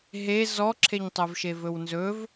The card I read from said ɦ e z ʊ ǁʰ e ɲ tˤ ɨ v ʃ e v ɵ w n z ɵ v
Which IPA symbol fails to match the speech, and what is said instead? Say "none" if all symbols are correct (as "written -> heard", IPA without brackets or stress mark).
ʊ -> ɔ